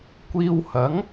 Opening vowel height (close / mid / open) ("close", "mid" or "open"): close